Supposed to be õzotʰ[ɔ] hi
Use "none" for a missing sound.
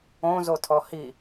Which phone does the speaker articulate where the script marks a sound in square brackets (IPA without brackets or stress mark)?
ɔ